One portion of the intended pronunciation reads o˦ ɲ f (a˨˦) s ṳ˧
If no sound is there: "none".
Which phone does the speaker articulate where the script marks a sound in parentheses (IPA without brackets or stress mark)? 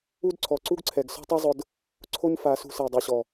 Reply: a˨˦